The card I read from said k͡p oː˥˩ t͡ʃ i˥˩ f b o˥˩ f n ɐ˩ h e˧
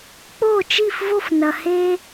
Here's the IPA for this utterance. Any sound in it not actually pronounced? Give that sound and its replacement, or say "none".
b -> v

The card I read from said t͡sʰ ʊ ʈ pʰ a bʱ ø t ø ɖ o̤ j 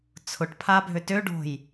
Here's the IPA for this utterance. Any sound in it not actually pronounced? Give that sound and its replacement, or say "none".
none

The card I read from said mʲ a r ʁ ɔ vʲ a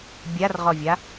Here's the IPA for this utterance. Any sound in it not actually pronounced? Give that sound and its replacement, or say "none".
mʲ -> bʲ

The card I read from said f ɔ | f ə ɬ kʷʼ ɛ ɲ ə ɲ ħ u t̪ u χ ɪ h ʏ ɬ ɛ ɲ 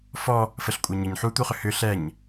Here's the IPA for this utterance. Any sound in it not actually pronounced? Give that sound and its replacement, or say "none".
ɪ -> ʏ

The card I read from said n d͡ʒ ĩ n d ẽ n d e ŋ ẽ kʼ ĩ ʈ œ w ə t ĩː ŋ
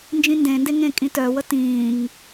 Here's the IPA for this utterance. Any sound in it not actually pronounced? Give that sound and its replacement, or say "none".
ʈ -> t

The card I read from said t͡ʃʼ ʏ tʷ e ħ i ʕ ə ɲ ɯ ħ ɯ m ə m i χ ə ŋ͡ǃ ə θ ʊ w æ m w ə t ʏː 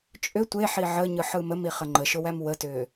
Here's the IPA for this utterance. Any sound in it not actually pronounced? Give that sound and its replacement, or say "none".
θ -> ʃ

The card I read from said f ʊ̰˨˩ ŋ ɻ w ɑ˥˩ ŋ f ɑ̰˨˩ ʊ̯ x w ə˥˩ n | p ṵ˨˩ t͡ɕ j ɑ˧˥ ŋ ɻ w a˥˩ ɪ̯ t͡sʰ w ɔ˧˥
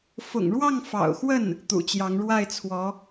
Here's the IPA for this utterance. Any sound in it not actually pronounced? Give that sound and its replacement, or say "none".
p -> t̪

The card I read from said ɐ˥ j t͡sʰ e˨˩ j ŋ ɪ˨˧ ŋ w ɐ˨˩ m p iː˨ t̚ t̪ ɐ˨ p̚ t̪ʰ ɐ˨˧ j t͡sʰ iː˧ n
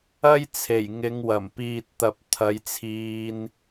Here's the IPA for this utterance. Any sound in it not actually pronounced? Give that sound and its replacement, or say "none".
none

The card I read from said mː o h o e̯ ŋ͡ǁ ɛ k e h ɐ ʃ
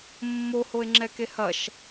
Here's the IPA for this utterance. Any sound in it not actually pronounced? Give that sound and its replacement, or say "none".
none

